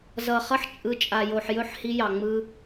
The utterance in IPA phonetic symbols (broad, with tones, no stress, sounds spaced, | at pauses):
z ʌ˨ χ ʌ˦ ħ t͡ʃʼ ɯ˨ t͡ʃʼ a˨ j o˨ ħ j ɵ˦˨ ħ h i˦ j ɑ˨ ŋ͡m ɯ˦